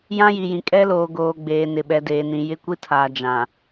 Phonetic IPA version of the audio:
j ã˦ j i˨ j ĩ˨ kʼ ɛ˦ l oː˨ ɡ oː˨ ɡ͡b eː˨ n ɪ˨ ɓ ɛ˨ d eː˨ n ĩ˨ j ɪ˦ kʷ i˦ tʰ aː˨ d͡ʒ ã˨

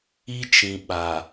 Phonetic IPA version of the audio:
i˦ t͡ʃ ĩ˨ ɓ a˨

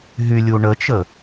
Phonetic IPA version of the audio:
ɦ y lʲ u ɳ ə t͡ʃ ə

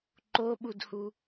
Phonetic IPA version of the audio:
ǃ o ɓ u d h u

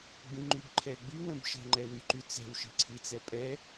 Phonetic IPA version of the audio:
ɡ͡b ĩ ŋ͡ǃ y b ǃʰ ɛ ɡ͡b y w ə̃ b ʃ ə̤ ŋ͡ǃ ɛ w y ǃ y t͡s ɛ̤ w ʃ i̤ ǀʰ i t͡s ɛ pʼ ɛ

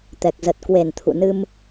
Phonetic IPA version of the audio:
t̪ ɛ˨˩ k̚ z ə˨˩ t̚ k w e˨˩ n t̪ʰ ṵ˧˨ n ɨ˧ m

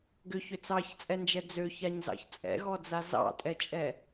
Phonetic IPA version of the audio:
ɡ ʏ ç ʏ t͡s ɑ ç t͡sʼ ɛ n d͡ʒ ɛ d͡z ø ç a ɲ z ɑ̰ ç t͡sʼ ɛ̰ ɣ ɔ d͡z a z ɑ̰ tʼ ɛ t͡ʃʼ ɛ

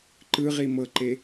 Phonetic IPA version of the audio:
ǃ ɯ ʁ i m ɤ ǃ e

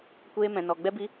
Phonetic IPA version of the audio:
kʷ eː˦ m ɛ̃˧ n ɔ˧ ɡ͡b ɛ˦ b i˦

